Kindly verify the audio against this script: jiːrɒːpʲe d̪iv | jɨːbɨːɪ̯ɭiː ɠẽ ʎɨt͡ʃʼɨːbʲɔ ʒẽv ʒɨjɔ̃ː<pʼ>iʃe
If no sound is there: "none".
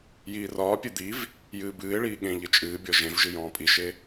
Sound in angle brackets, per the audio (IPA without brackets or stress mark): pʼ